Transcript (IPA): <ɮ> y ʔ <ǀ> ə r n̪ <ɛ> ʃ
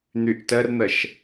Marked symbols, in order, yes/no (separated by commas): no, no, no